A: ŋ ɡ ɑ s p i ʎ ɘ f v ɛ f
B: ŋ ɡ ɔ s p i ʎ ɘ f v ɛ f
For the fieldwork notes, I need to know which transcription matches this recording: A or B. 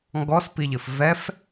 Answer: B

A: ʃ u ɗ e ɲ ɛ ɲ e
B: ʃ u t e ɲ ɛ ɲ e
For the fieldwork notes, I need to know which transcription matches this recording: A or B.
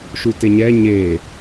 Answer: B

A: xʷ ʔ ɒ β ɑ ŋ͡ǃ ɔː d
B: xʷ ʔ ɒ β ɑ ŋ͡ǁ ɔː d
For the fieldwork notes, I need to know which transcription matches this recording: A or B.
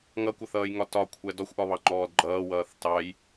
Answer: A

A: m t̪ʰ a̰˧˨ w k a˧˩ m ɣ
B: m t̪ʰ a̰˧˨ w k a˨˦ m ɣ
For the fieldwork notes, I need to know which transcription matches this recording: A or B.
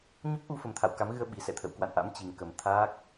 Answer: B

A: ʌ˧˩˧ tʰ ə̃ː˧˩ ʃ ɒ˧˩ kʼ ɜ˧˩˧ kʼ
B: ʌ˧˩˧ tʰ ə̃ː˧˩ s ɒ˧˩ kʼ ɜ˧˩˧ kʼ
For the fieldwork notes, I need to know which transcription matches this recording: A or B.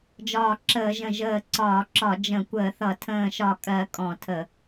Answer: A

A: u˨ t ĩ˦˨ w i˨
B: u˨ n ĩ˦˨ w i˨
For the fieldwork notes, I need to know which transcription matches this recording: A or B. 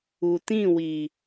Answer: A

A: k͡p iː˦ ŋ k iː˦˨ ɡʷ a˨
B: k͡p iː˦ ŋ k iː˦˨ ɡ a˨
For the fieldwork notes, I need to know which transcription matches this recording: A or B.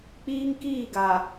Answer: B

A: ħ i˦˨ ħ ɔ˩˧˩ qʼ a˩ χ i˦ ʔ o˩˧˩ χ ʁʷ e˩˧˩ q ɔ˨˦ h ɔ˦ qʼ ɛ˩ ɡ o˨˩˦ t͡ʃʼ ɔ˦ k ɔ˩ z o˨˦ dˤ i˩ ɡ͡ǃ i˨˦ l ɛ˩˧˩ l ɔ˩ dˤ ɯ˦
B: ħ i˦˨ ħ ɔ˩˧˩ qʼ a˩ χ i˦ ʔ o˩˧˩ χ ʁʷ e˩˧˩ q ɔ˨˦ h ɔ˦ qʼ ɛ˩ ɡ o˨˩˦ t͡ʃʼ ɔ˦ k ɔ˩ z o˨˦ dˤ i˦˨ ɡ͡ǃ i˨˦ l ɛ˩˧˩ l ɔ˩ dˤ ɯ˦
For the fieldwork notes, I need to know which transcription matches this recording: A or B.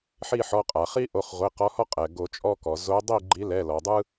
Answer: B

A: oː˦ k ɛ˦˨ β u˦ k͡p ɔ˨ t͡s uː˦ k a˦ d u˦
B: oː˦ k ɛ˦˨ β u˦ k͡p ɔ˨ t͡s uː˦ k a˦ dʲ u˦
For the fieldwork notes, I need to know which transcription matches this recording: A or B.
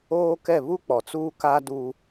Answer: A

